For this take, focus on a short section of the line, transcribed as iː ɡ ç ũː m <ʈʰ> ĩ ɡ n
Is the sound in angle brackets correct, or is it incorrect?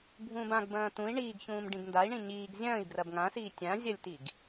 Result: incorrect